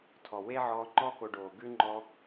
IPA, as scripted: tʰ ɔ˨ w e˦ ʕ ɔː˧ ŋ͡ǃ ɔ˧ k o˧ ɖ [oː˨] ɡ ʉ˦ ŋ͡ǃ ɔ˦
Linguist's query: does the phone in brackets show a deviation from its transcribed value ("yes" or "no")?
no